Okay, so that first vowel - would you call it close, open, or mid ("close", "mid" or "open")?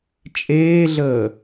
mid